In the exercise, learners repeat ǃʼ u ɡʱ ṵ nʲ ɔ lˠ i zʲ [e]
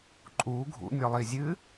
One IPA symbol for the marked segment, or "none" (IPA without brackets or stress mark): ɨ